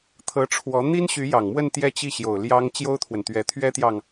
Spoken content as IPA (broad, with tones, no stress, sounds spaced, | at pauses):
t̪ʰ ɤ˧˥ ʈ͡ʂʰ w ɔ˧˥ n̪ i˥ n ɕ y˧˥ j ɑ˨˩ ŋ m w ə˥˧ n t̪ j ɛ˥˧ t͡ɕ i˥˩ ɕ j o˨˩ ʊ̯ l j ɑ˥ ŋ t͡ɕ j o˥ ʊ̯ t̪ʰ w ə˨ n t̪ ɥ ɛ˧˥ t̪ʰ ɥ ɛ˥ t̪ j ɑ˨ ŋ